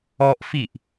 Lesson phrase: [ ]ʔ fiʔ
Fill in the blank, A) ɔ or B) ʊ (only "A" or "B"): A